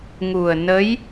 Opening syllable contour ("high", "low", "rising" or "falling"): low